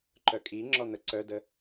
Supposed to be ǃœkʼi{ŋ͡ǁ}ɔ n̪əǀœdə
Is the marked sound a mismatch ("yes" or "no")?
no